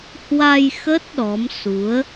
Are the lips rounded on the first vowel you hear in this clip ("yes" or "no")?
no